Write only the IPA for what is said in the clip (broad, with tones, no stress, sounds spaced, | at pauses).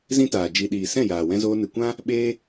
z ĩ˦ t aː˨ d͡ʒ i˧ ɗ iː˨ s ɛ̃˦˨ j aː˨ w ɛ̃˧ z oː˧ n ɨ˨ kʷ ã˦ | ɓ eː˦